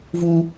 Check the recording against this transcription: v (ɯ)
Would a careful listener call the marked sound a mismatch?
yes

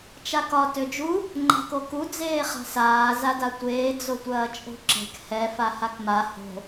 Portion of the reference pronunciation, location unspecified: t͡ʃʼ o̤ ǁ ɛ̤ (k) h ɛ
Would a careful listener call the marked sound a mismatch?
no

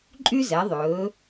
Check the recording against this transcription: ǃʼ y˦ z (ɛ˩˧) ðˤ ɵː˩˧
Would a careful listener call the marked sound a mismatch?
no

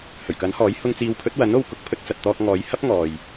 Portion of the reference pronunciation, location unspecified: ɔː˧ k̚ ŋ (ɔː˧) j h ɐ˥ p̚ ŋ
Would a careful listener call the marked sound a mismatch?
yes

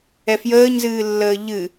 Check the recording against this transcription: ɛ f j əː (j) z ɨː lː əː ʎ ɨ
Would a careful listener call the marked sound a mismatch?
yes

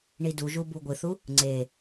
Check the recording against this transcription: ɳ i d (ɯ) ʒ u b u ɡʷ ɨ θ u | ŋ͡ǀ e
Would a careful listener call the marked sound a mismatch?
yes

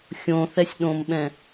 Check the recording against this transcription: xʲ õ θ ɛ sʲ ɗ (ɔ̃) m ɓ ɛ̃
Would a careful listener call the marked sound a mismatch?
yes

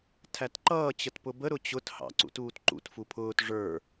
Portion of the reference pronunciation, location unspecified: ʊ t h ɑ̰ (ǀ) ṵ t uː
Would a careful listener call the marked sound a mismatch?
no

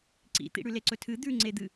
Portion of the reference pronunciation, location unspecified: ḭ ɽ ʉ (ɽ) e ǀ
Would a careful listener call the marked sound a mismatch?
yes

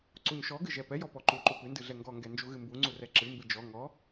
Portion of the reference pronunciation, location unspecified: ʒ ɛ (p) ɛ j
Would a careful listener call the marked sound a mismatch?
no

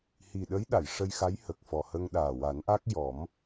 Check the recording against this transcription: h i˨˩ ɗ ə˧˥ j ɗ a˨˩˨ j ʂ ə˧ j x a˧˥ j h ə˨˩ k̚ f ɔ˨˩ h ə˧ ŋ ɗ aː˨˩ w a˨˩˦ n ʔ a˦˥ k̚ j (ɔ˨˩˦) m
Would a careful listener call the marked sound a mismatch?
no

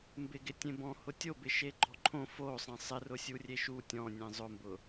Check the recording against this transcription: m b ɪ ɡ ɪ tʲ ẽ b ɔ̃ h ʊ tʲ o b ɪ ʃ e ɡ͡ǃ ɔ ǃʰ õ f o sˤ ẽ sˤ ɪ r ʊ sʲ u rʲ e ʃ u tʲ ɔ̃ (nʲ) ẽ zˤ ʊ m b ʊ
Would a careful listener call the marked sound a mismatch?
no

